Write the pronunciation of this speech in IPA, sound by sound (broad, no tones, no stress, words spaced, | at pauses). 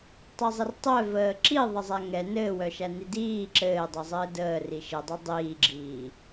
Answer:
tˤɘzˤɘrtˤœ vəːǁi ðˤəzˤæŋɛ nɘːwœʃæni diː ǁɘː dˤɯzˤɘːdəː riʃɘdˤœ dˤiːɡ͡ǁiː